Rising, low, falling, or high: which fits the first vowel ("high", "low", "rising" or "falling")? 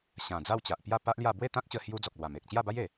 low